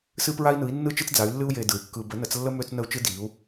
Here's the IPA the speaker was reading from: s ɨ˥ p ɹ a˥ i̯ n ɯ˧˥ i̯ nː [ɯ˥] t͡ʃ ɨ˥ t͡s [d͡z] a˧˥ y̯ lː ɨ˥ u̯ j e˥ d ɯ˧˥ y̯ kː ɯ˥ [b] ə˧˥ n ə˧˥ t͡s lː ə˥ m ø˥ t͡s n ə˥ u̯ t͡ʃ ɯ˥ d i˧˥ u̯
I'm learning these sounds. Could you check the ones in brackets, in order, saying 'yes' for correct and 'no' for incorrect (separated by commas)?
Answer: yes, yes, yes